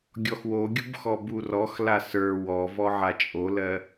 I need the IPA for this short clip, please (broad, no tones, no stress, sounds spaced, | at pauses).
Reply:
ɡʲ ɔ x w o ɡʲ u b x ɔ b u r ɔ x l a s ə˞ w ɔ v ɔ ʕ a t͡ʃʼ o l ɜ